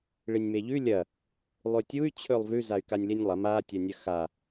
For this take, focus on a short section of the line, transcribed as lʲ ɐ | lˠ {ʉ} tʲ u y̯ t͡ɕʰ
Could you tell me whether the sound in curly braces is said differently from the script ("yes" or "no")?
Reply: no